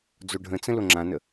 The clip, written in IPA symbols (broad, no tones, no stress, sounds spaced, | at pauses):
d͡z o ɖʱ ə̃ t͡s ə̃ l o ŋ͡ǁ ã n ə